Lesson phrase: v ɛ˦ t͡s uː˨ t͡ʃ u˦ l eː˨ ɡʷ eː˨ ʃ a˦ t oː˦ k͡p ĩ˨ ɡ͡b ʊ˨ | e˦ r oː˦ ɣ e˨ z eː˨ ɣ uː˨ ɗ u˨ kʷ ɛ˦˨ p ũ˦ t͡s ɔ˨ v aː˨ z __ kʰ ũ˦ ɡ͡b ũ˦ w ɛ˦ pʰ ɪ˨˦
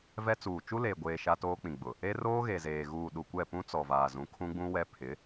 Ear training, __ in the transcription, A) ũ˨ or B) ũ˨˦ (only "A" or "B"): B